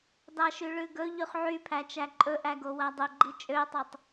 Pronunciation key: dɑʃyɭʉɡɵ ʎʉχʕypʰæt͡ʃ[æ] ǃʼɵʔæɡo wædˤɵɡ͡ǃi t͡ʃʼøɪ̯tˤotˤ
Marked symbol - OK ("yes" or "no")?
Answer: yes